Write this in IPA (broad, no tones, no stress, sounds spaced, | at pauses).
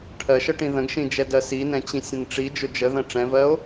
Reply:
ʈʰ ɜ ʃ ə ʈ ĩ ð ə̃ ɡ ʃ ĩ d͡ʒ ɛ d ɜ s i n ɛ̃ t͡ɕ ĩ sʲ ə̃ n ʈ͡ʂ i d͡ʒ ʊ d͡ʒ ə ð ə̃ ʈ͡ʂ ɛ̃ v ɜ o̯